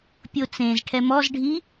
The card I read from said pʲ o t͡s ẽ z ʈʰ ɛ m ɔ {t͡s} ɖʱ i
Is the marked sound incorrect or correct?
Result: incorrect: z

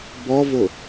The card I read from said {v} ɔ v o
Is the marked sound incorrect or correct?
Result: incorrect: b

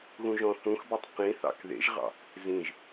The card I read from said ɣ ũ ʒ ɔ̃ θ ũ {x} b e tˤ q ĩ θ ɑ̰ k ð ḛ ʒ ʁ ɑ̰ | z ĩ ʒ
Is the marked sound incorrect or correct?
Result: correct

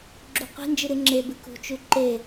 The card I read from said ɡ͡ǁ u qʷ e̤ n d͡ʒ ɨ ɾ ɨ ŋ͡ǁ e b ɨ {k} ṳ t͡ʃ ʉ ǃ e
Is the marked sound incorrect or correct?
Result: correct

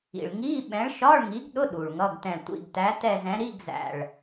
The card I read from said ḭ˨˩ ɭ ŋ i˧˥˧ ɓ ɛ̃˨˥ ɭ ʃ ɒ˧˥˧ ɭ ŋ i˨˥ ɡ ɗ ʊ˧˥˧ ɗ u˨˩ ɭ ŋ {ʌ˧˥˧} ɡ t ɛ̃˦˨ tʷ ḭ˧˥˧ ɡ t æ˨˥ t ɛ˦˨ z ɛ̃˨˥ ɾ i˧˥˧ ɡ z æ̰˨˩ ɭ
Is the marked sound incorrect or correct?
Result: correct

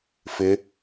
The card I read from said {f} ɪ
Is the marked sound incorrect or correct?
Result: correct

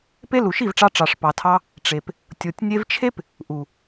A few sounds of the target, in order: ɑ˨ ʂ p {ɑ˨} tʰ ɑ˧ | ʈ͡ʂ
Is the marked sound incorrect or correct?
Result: correct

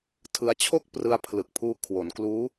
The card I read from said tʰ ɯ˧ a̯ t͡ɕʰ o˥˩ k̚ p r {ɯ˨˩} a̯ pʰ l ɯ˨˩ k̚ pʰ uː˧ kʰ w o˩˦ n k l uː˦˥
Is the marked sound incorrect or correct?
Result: incorrect: ɯ˧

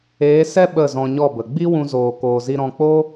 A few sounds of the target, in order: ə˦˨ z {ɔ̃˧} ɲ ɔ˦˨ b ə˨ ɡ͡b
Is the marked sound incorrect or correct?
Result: correct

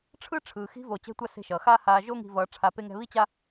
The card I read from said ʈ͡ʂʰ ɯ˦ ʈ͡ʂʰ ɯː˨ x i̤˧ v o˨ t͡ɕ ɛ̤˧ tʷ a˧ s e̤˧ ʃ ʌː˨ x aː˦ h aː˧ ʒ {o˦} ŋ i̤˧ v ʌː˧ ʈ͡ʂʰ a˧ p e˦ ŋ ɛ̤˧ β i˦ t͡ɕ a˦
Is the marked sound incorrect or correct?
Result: correct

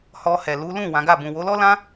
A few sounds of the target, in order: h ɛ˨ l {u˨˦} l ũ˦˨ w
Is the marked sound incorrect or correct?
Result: correct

